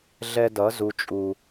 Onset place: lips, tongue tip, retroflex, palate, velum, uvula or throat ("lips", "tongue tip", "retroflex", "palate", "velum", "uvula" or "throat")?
tongue tip